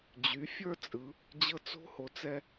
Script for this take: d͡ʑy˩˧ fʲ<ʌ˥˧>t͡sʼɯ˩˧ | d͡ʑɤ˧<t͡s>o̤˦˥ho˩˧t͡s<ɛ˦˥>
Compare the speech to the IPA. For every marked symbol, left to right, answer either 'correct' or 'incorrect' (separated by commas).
incorrect, correct, incorrect